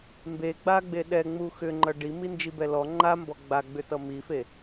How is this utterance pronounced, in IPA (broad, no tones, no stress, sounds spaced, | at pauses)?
m b e ɡ͡b a ɡ͡b e ɗ ɛ ŋ͡m u x ʏ ŋ͡ǃ ʌ ɖ i m i n d͡ʒ i b ɛ l ɔ ŋ͡ǃ a m b ɔ ɡ͡b a ɡ͡b ʏ t ʌ m i f e